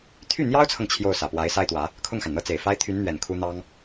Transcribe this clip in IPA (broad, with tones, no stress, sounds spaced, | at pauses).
t̪ʰ y˥˩ n̪ j ɑ˥ ʊ̯ t͡sʰ ɤ˨ ŋ t͡ɕʰ j o˥˩ ʊ̯ s ä˨˩ p w a˧˥ ɪ̯ s a˥ ɪ̯ t̪ w ä˧˥ | kʰ ʊ˥˩ ŋ x a˩ n n̪ ɤ˥ t͡s e˨˩ ɪ̯ f a˥ ɪ̯ t̪ʰ y˧˥ n n̪ ɥ ɛ˨˩ n kʰ u˥ n̪ ɑ˥ ŋ